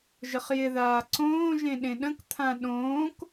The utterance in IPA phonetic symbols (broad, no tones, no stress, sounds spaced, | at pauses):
ʒ ə χ j ɪ ð aː ǀ õː ʒ ẽ ɗ ẽ ɗ ə̃ k t̪ʰ ã ɗ õː k